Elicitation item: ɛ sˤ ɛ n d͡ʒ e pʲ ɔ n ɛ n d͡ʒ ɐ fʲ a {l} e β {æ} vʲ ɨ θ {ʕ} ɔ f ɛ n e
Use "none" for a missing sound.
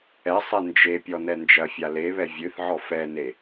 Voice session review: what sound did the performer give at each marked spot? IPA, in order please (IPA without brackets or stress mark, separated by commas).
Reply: l, ɛ, ʕ